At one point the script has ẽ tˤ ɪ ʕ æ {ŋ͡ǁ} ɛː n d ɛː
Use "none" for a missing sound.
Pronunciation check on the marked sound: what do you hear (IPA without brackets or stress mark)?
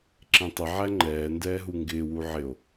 ŋ͡ǃ